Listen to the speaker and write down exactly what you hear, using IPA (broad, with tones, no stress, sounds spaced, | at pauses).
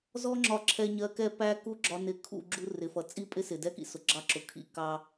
z ɔ˦ ŋ͡ǁ ɒ˧ ǁʰ ɛ˧ ɲ ɜ˧ k ɛ˦ p æ˦ k u˦ ɡ͡ǁ ɒ˧ n ɪ˧ kʰ ṵ˦˨ ɡ͡ǁ u˦ r ɪ˨ f ʌ˨ t͡sʼ i˦ pʼ ɪ˦ s ɪ˨ d ɛ˦ k ḭ˧ s ʊ˨ ɡ͡ǁ ɑ˧ ǁ ʊ˨ kʰ ḭ˦˨ k ɑ˧